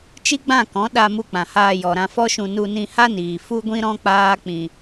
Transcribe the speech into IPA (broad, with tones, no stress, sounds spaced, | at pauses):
t͡ʃ i˦ ɡ͡b ã˦˨ k ɔ̃˨˦ ɗ a˧ m u˧ k͡p ã˨ h aː˧ j ɔ˨ ɾ ã˧ f ɔ˦ ʃ ũ˧ n u˧ n ĩ˧ h a˦ n iː˨ f u˦ ɡʷ ĩ˦ ɾ ɔ̃˦ k͡p aː˦ k͡p ĩ˧